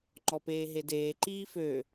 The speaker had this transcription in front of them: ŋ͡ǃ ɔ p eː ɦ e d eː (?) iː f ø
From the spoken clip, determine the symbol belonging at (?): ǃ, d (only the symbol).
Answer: ǃ